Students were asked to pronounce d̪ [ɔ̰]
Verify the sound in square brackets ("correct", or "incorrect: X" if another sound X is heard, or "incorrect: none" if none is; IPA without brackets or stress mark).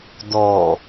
incorrect: ɔ